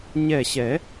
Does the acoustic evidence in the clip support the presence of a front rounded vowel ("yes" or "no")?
no